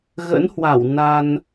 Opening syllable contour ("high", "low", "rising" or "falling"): rising